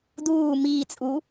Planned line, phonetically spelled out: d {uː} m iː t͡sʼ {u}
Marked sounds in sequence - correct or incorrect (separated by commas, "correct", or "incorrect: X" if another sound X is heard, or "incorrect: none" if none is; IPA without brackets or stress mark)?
correct, correct